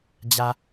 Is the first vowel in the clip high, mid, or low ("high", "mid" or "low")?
low